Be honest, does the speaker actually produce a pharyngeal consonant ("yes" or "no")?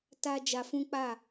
no